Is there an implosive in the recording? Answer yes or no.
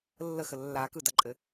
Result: no